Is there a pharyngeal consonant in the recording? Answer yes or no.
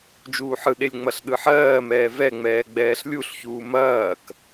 yes